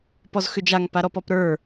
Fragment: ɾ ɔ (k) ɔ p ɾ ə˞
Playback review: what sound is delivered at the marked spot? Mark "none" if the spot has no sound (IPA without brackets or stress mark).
p